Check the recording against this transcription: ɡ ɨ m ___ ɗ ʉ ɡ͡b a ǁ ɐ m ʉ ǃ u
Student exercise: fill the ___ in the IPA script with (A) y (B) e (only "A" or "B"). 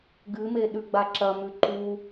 B